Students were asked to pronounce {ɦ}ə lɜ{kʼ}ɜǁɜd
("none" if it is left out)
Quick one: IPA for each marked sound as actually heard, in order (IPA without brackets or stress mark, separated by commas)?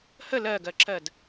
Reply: h, ɡ